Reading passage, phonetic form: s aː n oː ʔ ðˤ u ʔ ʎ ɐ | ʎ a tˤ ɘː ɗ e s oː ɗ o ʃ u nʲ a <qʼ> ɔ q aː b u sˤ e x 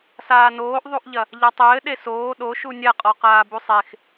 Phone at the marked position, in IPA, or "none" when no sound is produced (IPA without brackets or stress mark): qʼ